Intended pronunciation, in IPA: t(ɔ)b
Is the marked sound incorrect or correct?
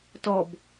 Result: correct